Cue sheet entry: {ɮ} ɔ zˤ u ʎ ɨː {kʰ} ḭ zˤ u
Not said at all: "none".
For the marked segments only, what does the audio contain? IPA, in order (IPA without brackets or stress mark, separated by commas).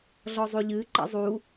ɮ, ǃ